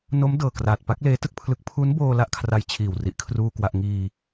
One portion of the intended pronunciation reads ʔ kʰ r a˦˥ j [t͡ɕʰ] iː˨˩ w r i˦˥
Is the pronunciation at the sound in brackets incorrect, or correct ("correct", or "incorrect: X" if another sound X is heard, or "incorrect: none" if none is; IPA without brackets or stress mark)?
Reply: correct